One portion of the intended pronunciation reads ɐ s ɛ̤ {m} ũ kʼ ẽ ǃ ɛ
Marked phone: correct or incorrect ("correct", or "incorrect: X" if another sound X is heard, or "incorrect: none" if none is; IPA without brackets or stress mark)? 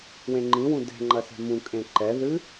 correct